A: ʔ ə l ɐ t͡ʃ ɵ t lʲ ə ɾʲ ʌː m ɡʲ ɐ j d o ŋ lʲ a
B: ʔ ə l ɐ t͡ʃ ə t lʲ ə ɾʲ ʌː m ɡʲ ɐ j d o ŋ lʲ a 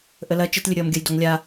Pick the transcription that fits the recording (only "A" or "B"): B